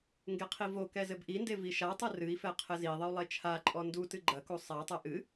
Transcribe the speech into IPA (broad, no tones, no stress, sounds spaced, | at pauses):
ŋ ɡ e qʰ i v o k ɛ z ɘ b ʔ i n d e v i ʃ a tˤ ɨ r ɨ i̯ f ɛ qʰ ɘ z i ðˤ ɘ u̯ lˠ e t͡ʃʰ a ǃʼ ɔ n d u t ɨ ɡ͡ǃ ɐ k u sˤ a tˤ ɛ ʔ ɨ